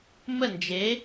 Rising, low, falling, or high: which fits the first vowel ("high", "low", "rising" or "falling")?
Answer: falling